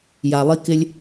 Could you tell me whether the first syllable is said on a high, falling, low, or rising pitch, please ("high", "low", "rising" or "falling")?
low